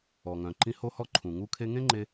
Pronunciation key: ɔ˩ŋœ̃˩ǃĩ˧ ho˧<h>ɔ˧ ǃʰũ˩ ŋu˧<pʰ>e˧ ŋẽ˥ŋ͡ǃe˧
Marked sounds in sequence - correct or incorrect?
correct, incorrect

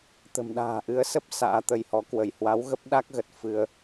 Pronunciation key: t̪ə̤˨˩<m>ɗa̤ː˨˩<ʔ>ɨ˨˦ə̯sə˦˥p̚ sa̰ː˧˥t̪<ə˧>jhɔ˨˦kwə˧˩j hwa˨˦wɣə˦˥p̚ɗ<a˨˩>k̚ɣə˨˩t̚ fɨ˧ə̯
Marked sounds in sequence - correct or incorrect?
correct, correct, correct, incorrect

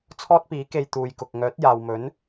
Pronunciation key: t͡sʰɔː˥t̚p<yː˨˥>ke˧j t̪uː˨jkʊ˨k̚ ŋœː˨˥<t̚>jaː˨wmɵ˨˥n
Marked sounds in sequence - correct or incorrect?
incorrect, correct

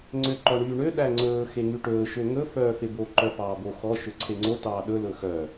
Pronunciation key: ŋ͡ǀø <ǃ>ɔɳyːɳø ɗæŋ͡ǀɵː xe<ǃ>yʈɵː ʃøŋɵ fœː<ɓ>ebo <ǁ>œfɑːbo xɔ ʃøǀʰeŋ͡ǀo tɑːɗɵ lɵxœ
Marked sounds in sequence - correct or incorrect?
correct, incorrect, incorrect, incorrect

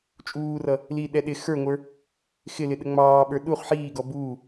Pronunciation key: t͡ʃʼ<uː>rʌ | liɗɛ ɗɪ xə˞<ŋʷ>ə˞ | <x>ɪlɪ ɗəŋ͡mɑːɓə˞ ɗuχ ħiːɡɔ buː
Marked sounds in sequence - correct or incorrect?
correct, correct, correct

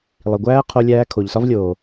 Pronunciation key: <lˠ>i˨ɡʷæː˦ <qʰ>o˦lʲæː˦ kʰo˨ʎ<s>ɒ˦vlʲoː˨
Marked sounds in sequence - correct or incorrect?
correct, correct, correct

